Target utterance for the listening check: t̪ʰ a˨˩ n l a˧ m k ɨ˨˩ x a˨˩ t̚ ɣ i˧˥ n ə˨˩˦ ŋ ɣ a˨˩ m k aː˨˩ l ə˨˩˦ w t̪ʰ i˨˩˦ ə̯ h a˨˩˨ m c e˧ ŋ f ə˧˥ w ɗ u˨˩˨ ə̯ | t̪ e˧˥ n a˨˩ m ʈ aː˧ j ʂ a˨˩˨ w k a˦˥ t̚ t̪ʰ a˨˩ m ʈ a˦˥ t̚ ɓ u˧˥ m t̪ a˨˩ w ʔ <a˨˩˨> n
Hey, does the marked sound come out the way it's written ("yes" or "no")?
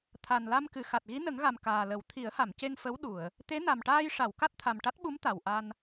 no